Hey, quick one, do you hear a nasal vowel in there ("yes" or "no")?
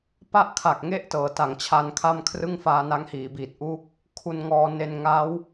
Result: no